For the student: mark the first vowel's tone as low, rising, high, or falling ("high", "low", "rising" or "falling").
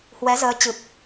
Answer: rising